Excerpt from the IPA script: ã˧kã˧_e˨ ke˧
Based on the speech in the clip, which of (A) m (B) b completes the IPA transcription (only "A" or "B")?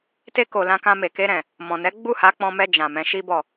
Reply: A